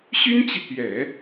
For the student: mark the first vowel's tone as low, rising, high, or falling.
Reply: high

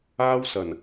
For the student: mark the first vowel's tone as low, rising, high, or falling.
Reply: high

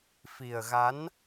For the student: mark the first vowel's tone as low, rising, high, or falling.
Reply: low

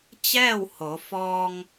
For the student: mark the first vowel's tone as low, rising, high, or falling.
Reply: falling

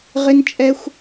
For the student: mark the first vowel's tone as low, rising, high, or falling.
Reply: high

